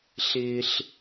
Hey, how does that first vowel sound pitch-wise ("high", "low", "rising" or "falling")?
low